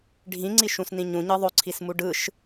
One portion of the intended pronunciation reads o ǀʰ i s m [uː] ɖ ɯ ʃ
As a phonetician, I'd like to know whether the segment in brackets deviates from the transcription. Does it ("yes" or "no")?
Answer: yes